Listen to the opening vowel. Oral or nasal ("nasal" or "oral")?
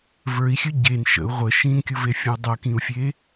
oral